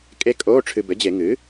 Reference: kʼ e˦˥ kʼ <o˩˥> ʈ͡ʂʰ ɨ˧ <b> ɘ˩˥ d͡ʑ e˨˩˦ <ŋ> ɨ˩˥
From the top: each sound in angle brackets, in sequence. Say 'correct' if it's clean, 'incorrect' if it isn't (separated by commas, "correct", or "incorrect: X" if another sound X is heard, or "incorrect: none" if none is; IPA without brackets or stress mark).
incorrect: o˧˥˧, correct, correct